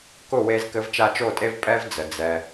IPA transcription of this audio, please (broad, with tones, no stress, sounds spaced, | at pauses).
k ʊ˦˨ w e˧ z k ɘ˧ v t͡ʃ a˧ t͡ʃ o˦˨ tʼ e˦ v pʼ ɛ˦ v d͡z ə˨ d͡z ɛ˧